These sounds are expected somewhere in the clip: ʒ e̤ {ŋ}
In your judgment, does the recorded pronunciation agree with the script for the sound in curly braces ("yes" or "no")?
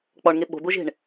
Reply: no